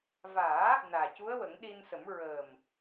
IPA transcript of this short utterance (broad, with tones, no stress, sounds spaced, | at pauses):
v aː˨˩˦ | n aː˨˩ c u˧˥ ə̯ w ə˨˩˦ ŋ ɗ i˧ n s ə˨˩˦ m ɹ əː˨˩ m